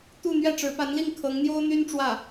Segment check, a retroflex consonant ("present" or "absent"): present